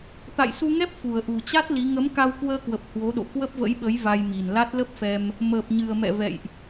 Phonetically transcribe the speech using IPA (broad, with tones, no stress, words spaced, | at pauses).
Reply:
t̪a̰˧˨jsu˧ŋɛ˦˥p̚ fu˨˩ə̯ʔu˨˩t͡ɕa˦˥t̚ li˨˦ ŋə˨˦mka˧wkwəː˧kwə˨˩p̚ hwo˨˦ɗo̰˧˨ kwə˦˥p̚və̰˧˥jɓə˨˦j va˧jmi˨˩n la˦˥t̚lə˦˥p̚fɛ˧m | məː˨˩p̚ɲɨ˨˩ə̯mɛ̰˧˨ vɛ̰˧˨jʔ